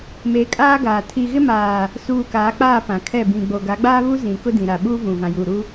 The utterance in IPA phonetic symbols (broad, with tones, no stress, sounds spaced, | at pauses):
m e˨˦ kʼ aː˦ ɡ aː˨ tʰ i˨ ɣ ɪ˦ m aː˨ | s uː˨ k aː˨˦ k͡p aː˦˨ p ã˨ kʰ ɛ˦˨ b ĩ˨ ɡ͡b o˨ ɡ a˨˦ ɡ͡b aː˦ β u˦ z ĩ˨ k ʊ˦ d ĩ˨ ɾ a˨ ɓ uː˦ v ũ˨ v ã˨ j uː˨ ɾ u˦